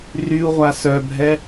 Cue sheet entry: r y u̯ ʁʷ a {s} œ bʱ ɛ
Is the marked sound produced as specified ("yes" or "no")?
yes